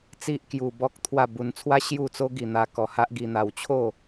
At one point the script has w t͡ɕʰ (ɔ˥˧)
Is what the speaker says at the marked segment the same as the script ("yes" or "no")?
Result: no